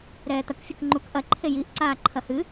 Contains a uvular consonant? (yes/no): no